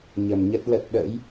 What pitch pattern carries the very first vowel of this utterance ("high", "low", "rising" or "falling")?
low